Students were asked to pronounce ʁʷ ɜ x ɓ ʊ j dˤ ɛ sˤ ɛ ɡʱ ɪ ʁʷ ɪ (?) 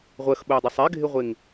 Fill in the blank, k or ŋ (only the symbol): ŋ